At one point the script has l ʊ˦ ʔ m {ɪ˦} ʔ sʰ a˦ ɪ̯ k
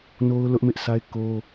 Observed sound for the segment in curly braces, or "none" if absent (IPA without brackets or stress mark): ɪ˦